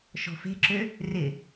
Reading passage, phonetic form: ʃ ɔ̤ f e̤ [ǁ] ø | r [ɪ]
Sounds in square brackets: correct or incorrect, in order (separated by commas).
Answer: correct, correct